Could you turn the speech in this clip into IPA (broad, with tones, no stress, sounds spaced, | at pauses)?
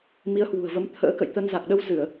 m i˨˦ ə̯ h w ṳ˨˩ ə̯ v ə˨˦ m t̪ʰ ə̰ː˧˥ k ə̰˧˨ j t̪ ə˧ n z a˨˩ k̚ ɗ ə˧ w z ɨ˧˩˨ ə̯